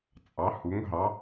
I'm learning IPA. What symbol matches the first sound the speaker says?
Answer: t͡sʼ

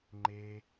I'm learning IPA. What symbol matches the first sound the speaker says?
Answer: ŋ͡ǃ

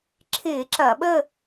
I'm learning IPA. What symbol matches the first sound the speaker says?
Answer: ǁʰ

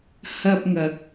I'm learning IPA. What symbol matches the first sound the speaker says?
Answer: h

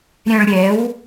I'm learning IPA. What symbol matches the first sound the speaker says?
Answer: ɾʲ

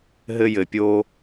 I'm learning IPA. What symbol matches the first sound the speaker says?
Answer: ɦ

